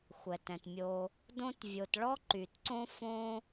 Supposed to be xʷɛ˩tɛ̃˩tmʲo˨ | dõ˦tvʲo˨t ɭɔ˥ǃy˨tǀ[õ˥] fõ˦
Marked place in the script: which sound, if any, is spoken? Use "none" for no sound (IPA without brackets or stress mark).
õ˥